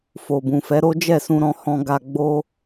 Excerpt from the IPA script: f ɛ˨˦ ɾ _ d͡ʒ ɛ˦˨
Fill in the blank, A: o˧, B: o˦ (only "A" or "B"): B